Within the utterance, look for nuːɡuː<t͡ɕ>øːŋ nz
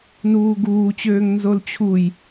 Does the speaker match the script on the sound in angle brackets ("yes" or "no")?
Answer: yes